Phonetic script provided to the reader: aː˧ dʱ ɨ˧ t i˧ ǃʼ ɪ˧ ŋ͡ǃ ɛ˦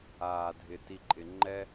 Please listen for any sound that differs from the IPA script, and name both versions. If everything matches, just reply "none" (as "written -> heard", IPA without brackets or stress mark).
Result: ɨ˧ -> ɪ˧